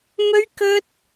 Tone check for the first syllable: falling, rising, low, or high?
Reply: high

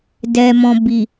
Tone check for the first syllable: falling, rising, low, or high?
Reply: low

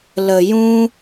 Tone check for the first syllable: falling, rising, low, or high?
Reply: low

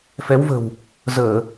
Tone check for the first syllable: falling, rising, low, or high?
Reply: rising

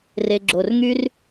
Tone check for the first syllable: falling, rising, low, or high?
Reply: low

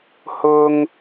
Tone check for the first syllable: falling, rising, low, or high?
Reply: high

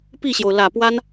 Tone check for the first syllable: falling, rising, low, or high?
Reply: falling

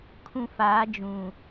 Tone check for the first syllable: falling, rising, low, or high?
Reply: low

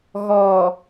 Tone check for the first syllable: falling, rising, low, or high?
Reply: low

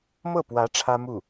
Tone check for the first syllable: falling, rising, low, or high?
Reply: falling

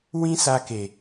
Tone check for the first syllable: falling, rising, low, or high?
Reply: high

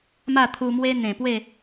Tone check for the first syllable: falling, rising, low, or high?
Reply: falling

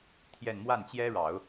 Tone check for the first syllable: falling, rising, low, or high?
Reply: falling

